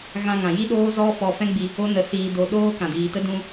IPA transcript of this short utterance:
ɣã˧ŋã˨ji˦ɗoː˦ zɔ˦fɔ˧fɛ̃˦ɡ͡bi˧ | o˦nə˧ siː˧do˧ ɗoː˦kã˨diː˨tə˦ dũ˧

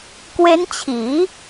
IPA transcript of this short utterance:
kwe˦˥nt͡ɕʰiː˩˦

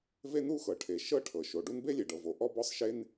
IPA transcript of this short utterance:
ve˥ nu˥xɤ˩ ʈʰe˩ ʃɤ˥ʈʰɤ˩ ʃo˩ɖu˥n be˥lʲe˩ɖɤ˩vo˩ ʔɔ˥bɔ˥sˤ ʃe˥n

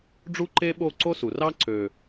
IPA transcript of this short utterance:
ɖ͡ʐu˦ǃe˦ɓo˦˨ ǀo˦su˨rɑ˦ ǀø˨

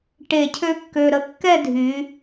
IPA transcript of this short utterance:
ʈe˧˩cʰø˥kːø˧ɾə˧ kːɛ˥˧dʱy˩˧

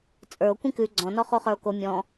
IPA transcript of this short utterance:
t͡sʼə˞o̯ kʷĩkʉ ɡ͡ǀɔ̃nɔ χoχə˞o̯ko mʲɔ̃

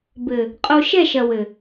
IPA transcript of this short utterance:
bɘ˨ | qʼo˧ʃɛ˦˨ʃɐ˨ wɘ˨

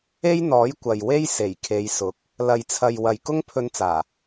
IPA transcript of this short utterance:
e˥jn̪ɔː˨˥j kʷɐ˨j we˥j se˨˩jkʰe˨˧jsʊ˨˥k̚ | lɐ˨jt͡sʰɐ˨j wɐ˨jkʊ˥ŋpʰɵ˧nt͡saː˨˩

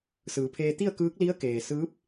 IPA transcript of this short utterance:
sɯː˩˧pʰeː˧ t̪i˥˨ə̯kɯː˧˥k̚li˧˥ə̯keː˩ sɯː˧˥p̚

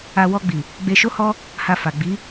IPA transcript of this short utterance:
a˧ wɔ˧ɡ͡bi˨ | ɡ͡be˧ʃo˦hɔ˦ | ha˧fa˨ ɡ͡bi˨˦

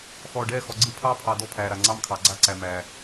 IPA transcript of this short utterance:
xɔː˨ɖɛː˦˨xɔ˨ɡ͡ǀɯ˦ pʰɑː˦pʰɑ˨dɔ˦ pʰæː˨ɾa˨ ŋ͡ǀɑ˦mkʰɑ˨ɡ͡ǀa˦ǀæ˨ mæː˨

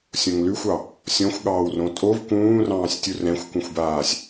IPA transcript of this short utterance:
sʲõŋlʉxʷɑ | sʲɔ̃xʷ ɠɑːwrõtʼov kũːrɑ̃ːsʲtʲu rɛ̃xʷkũxʷbaːsʲ

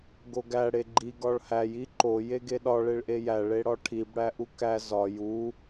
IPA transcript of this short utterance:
ɡoɡæ ɽeɡ͡ǃi ɡɒɭhæj iǃo jeɡeɗɒ ɭeɭʔejæ ɭeɽɒʈʰib ɽæʔukæ zɒ ju

